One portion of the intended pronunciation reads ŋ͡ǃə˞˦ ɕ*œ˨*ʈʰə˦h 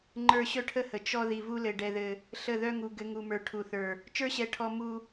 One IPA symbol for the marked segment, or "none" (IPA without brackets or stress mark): œ˦